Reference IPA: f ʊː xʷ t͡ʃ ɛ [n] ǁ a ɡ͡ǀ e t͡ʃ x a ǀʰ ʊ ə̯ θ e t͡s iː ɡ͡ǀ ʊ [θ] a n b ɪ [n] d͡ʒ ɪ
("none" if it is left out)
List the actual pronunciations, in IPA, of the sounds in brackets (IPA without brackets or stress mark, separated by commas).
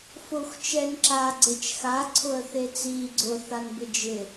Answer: n, θ, none